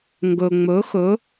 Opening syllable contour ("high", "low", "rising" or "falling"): low